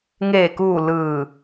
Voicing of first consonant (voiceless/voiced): voiced